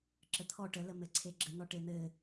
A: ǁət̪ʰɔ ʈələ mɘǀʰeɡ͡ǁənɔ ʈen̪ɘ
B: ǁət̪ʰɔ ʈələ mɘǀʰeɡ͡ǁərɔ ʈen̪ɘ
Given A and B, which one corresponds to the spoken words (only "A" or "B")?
A